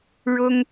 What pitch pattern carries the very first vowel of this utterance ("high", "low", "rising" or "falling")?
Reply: high